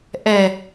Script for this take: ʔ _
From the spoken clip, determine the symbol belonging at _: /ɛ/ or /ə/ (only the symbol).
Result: ɛ